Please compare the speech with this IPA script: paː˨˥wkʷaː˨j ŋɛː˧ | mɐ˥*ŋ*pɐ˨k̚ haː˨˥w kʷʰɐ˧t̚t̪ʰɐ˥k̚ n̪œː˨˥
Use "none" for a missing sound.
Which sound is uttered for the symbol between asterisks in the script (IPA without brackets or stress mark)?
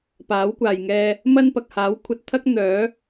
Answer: n